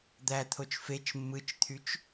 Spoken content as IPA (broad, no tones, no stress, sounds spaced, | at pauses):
d̪ æ t̪ʰ o t͡ʃ f e t͡ʃ mː ɯ t͡ʃ t̪ʰ y t͡ʃ